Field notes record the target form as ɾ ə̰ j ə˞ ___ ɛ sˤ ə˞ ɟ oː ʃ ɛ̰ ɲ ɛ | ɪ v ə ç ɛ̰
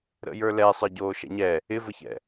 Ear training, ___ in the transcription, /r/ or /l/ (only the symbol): l